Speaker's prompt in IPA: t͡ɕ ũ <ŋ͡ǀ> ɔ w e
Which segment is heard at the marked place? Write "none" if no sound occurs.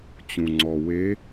ŋ͡ǀ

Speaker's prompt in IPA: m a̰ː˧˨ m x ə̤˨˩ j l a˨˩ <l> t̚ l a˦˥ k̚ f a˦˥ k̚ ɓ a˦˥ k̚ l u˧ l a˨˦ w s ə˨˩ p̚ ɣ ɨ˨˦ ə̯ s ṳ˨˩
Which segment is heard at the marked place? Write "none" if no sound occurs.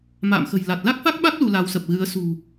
none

